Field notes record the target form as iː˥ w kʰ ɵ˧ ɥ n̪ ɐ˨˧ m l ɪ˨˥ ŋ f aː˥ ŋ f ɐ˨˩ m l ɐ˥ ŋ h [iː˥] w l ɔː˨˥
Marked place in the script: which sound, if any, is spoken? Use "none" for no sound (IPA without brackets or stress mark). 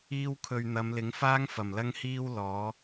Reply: iː˥